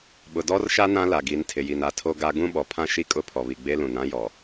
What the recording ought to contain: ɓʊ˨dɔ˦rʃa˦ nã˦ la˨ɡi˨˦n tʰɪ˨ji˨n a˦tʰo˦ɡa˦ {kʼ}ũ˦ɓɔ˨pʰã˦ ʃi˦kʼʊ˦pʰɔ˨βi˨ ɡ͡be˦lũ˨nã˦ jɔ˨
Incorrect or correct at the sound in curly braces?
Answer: incorrect: ɡ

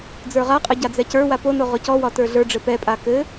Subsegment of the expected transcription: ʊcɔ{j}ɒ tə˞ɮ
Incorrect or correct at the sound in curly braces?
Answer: incorrect: w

